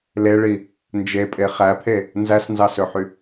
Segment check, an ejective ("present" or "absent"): present